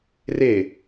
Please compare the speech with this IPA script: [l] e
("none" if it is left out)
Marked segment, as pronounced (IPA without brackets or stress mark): r